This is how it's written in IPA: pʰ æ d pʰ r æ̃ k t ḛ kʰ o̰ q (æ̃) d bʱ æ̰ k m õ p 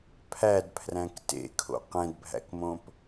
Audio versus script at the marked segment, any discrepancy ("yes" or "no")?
yes